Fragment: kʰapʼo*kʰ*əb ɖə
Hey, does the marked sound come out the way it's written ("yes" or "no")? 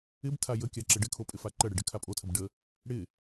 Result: no